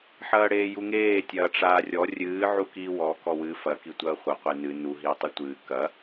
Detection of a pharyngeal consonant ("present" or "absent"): present